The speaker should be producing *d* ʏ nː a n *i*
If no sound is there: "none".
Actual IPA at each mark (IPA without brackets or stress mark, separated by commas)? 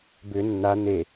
b, e